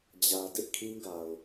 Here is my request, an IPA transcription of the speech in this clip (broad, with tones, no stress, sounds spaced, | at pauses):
d͡ʑ ä˨ d ɪ˦ ʔ kʰ ĩ˦ ɡ a˨ ʊ̯